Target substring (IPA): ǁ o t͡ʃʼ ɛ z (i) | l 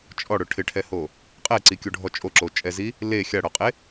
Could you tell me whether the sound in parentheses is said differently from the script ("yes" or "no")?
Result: no